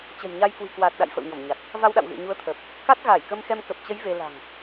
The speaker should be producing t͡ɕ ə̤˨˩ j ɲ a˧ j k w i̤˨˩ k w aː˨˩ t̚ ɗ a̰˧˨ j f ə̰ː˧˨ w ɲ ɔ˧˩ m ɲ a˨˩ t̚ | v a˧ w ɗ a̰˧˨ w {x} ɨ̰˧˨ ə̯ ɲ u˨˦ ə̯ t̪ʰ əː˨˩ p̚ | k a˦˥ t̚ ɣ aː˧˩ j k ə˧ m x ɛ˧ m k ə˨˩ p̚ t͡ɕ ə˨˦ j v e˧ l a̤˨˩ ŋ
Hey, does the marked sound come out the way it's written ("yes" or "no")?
no